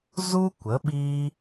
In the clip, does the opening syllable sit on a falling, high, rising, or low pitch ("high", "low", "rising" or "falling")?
high